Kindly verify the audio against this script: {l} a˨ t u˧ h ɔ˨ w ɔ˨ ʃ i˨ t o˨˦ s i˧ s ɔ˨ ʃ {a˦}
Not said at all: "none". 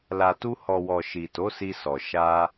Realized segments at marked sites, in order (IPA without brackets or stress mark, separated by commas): l, a˧